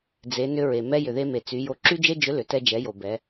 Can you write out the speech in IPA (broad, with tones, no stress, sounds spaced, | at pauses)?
d͡z e˩˧ n ʏ˧ ɹ e˩ m ɛ˧ j ʏ˩ ð e˧ m e˩ t͡s y˩˧ j o˧ ǁ y˥ d͡ʒ e˥ d͡ʒ ʏ˧˥ l ʏ˩˧ t ɛ˧ d͡ʒ ɛ˩˧ j o˩ b ɛ˩˧